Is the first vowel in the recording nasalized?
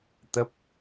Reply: no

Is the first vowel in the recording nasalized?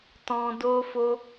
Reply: yes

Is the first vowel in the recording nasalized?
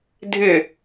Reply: no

